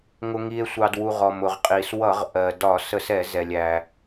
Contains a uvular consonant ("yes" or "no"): yes